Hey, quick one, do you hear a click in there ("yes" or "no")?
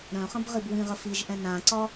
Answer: yes